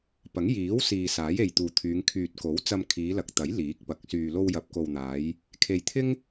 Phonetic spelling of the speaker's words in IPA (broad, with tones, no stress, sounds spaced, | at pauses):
p ɐ˨˥ ŋ j iː˨˥ w s iː˨ s aː˨˥ j e˨ j t̪ uː˨ t̪ʰ yː˨˧ ŋ kʰ yː˨ t̚ k o˨˥ w t͡s ɐ˧ m kʰ iː˨˧ l ɐ˨ k̚ t̪ ɐ˨˥ j l iː˨˥ k̚ p ɐ˨˥ k̚ s yː˧ l o˧ w j ɐ˨ p̚ k o˨ w n̪ aː˨˧ j | kʰ e˨ j t̪ʰ ɪ˥ ŋ